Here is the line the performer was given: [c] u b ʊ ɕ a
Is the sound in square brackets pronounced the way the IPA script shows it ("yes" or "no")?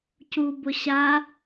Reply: yes